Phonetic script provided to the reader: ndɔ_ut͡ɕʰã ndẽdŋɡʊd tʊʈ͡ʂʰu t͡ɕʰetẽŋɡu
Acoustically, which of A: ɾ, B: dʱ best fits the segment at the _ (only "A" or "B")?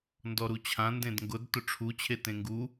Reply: A